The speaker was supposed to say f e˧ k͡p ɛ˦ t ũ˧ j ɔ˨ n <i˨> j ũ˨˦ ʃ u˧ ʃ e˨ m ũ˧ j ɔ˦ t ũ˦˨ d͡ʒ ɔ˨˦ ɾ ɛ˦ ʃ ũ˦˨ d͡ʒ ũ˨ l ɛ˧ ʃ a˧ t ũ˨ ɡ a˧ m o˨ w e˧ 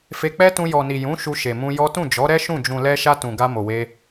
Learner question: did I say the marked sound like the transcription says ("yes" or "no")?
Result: yes